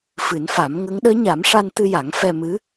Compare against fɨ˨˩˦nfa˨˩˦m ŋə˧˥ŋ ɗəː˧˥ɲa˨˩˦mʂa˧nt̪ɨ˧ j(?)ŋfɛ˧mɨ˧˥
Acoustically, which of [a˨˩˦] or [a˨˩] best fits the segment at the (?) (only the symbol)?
a˨˩˦